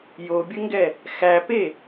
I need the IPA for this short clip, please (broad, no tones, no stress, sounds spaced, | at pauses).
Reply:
j o bʲ ə ŋ ɡ ɛ | x æ p e